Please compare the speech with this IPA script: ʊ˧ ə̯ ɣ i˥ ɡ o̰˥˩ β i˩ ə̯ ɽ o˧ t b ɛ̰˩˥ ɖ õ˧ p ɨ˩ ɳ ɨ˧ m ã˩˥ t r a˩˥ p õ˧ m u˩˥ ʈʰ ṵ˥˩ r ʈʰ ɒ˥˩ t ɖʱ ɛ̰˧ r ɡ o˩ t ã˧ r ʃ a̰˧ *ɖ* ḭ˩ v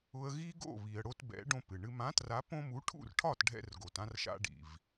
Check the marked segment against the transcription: correct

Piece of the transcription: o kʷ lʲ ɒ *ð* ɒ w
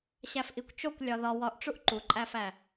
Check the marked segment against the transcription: correct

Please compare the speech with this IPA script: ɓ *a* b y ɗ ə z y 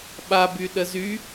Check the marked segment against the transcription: correct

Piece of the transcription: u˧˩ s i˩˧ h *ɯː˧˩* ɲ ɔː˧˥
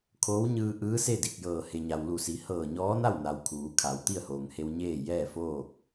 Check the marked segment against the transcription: incorrect: ɤː˧˩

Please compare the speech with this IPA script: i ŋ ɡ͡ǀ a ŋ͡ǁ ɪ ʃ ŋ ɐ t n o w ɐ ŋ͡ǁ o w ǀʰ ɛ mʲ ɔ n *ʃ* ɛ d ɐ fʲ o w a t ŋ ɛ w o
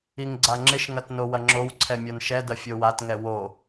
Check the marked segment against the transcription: correct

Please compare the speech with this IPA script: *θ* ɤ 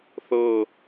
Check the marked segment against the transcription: correct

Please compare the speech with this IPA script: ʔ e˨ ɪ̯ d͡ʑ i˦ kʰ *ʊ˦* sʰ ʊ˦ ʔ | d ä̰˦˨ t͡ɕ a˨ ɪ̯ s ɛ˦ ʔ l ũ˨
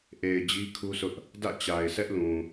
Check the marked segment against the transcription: incorrect: u˦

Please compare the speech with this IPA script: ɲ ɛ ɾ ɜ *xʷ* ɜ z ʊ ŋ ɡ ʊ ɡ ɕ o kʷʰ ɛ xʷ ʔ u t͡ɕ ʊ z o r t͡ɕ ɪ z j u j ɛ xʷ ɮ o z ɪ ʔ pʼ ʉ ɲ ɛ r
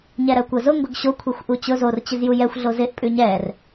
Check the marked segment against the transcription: incorrect: kʷ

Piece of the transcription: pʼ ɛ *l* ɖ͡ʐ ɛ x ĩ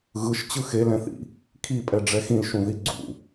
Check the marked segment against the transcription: incorrect: none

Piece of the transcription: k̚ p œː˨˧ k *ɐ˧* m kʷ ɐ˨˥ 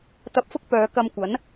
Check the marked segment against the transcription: correct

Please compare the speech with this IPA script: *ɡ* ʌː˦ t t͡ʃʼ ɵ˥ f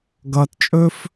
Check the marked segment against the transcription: correct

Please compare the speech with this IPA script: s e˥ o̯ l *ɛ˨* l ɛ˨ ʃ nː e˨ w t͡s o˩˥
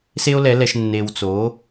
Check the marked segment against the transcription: incorrect: ɛ˩˥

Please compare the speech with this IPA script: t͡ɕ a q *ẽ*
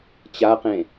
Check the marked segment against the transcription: correct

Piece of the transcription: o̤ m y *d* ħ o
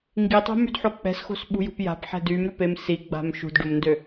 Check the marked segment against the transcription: correct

